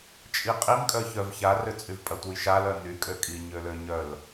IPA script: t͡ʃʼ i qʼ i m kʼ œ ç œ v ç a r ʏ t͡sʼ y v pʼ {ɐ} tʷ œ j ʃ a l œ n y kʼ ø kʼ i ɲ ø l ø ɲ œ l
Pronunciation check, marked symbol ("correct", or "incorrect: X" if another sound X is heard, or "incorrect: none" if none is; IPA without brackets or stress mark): correct